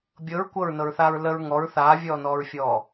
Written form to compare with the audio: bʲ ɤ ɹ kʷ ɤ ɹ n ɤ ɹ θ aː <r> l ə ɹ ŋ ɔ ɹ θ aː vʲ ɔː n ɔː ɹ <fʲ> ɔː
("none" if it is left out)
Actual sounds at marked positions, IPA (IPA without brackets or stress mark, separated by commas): ɹ, fʲ